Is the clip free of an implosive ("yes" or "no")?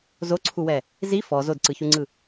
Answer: yes